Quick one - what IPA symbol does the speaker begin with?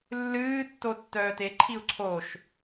lː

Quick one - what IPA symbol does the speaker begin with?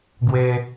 ɡ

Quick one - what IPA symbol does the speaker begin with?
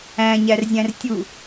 æ̃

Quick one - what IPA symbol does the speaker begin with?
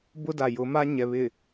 b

